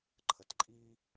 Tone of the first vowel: low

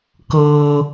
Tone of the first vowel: low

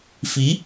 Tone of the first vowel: rising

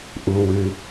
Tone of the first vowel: low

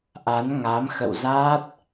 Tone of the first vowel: rising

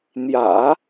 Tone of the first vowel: low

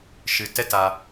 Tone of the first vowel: low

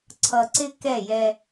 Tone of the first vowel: low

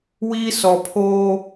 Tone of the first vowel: high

